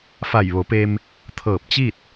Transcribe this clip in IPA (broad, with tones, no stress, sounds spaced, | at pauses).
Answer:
f a˧˩ j ʋ o˩˧ p e˧ m | t̪ʰ ɤː˧˩ p̚ t͡ɕ i˥˨ t̚